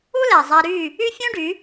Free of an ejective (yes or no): yes